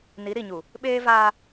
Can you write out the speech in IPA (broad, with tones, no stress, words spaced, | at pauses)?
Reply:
ni˨˦ɾi˨ɲu˨ | ɓeː˦vaː˦